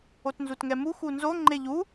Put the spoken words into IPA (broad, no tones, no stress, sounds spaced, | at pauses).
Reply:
o t n z u t ŋ ɛ m u x u n z o ŋ͡ǃ e ʎ u